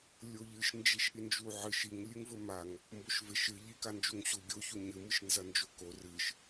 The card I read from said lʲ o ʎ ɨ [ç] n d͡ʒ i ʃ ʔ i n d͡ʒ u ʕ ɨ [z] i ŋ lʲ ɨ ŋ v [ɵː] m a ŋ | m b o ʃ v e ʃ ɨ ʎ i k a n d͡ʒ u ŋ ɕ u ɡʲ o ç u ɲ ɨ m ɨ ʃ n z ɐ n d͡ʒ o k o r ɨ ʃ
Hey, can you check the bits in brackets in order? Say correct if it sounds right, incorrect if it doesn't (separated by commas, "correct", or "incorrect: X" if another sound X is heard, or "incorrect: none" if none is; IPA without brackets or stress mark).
incorrect: ʃ, incorrect: ʃ, incorrect: ɵ